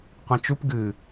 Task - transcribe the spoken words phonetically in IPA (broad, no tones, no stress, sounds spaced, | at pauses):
qʷ ĩ t͡ʃ u p ɡ ɨ